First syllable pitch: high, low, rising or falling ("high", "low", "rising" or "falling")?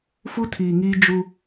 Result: high